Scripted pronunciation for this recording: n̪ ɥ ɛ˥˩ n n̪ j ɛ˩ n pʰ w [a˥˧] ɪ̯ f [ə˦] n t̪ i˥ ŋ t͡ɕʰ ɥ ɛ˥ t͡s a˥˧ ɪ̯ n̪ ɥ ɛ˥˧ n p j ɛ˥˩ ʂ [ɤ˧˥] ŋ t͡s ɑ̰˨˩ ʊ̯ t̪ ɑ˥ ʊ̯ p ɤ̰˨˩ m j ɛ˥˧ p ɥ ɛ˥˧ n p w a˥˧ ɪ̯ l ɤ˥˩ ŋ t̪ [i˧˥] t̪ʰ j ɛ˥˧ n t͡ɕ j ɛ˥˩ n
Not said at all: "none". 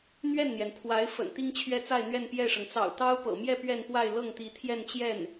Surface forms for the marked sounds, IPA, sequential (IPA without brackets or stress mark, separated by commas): a˧˥, ə̰˨˩, ɤ˩, i˧˥